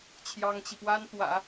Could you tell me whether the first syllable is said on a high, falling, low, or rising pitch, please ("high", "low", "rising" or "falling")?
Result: high